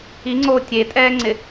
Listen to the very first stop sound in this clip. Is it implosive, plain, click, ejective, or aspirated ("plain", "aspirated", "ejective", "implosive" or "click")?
click